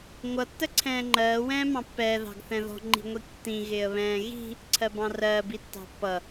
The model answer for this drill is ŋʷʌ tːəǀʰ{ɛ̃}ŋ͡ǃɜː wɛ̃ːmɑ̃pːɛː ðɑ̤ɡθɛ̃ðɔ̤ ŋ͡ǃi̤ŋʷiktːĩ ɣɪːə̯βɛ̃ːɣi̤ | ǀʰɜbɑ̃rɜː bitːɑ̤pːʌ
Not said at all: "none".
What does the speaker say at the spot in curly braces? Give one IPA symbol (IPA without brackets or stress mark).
ɛ̃ː